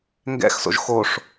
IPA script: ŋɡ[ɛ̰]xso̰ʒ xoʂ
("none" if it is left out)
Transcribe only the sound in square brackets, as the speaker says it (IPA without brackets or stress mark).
ɛ̰